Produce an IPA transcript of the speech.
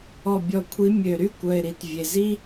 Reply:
ɔ˨ bʲ ɔ˨ kʷʰ i˨˦ mʲ ø˨ ɾ y˦ kʷ œ˨ ɪ̯ ɾ i˨ t vʲ e˨ z i˦

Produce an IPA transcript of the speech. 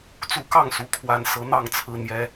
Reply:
t͡s u˨˦ k ɑ˥˨ ŋ s u˨˦ kʰ w a˨˩ n s ɤ˨˦ n̪ ɑ˨˦ ŋ t͡sʰ ɹ̩˨˩ n̪ j ɛ˨˦

